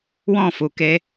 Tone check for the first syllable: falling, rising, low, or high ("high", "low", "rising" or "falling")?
falling